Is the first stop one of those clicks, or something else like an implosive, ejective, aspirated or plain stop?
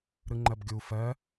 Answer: click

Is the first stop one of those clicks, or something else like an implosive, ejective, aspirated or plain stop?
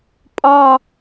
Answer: ejective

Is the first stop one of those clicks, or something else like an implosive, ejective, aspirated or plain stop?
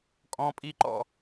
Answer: ejective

